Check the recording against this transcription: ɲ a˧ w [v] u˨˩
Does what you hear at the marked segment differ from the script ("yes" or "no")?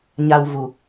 no